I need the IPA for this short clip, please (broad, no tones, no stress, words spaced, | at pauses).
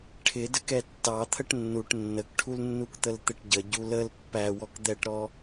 ʈʰɪ dəkɛtːɑ t̪ʰəʈnːuʈ nːəkʈʰulnːukt̪əl t̪ɪʈɟəɟu ləl pːæwɔk d̪ɛʈɾɔ